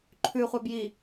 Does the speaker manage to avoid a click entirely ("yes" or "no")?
no